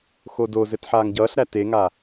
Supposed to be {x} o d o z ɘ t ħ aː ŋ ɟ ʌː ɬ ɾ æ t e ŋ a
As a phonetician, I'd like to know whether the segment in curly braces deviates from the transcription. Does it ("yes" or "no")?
no